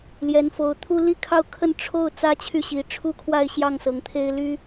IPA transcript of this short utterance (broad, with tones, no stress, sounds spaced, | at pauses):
l j ɛ˧˥ n f o˧˥ ʊ̯ t̪ʰ u˥ l i˥˧ kʰ ɑ˥˧ ʊ̯ kʰ ə˥˧ n ʈ͡ʂʰ o˥˩ ʊ̯ t͡s ä˥ t͡ɕʰ y˥˩ ɕ i˧˥ ʈ͡ʂʰ u˥ kʰ w a˥˧ ɪ̯ ɕ j ɑ˥˩ ŋ s ɤ˧˥ ŋ t̪ʰ e˥ ɪ̯ l y˥